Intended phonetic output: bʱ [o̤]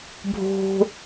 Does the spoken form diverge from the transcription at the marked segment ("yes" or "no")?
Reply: no